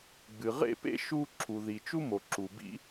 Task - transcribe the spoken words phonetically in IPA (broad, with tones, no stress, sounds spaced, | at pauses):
ɡ͡b ɨ˩ ʁ ḛ˥ p ḛ˥ ʃ u˥ ǁʰ u˩ ð i˩ t͡ʃ u˥ m o˩ ǁ u˩ b ḭ˥